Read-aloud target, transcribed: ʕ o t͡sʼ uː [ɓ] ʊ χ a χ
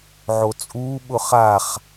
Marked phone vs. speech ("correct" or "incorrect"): correct